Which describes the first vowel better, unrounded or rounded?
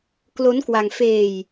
rounded